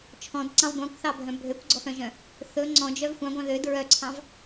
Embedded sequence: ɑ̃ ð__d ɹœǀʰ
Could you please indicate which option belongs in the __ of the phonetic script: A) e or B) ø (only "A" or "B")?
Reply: B